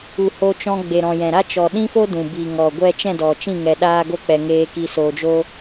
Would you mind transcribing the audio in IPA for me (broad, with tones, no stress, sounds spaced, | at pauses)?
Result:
u˨ h o˧ t͡ʃ ɔ̃˧ ɡ͡b e˨ ɾ ɔ̃˨ j ɛ̃˨ ɾ a˦ t͡ʃ ɔ˨ ɗ ĩ˦ f o˦ d ũ˨ b i˨ ŋ ɔ˨ ɡʷ ɛ˦ t͡ʃ ɛ̃˦˨ d ɔ˨ t͡ʃ ĩ˦˨ ŋ ɛ˧ ɗ aː˦ ɡ o˦ k͡p ɛ˧ ŋ eː˧ k i˧ s oː˧ d͡ʒ o˦